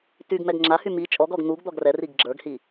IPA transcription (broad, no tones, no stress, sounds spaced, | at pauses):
t y ɡ m ɛ ɡ ŋ͡ǁ a h y m i t͡ʃʼ ɔ ɡ ɔ ɡ n̪ u ɡ d̪ ɔ ɡ r ɛ r i ɡ ɡ͡ǁ ə˞ ɡ h i